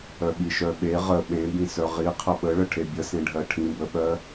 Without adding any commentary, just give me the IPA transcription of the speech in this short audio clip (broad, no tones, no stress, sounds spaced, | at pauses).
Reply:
œ ɓ i ʃ œ ɓ e ʁ ə ɓ ẽ b ĩ s œ ʁ i qʰ ə ɓ ə ɭ ə ʈʰ e bʲ ə s ẽ ɖʱ ɜ ʈʰ ĩ b ə ɓ ɜ